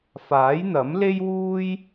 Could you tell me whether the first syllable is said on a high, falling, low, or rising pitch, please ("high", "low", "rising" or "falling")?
rising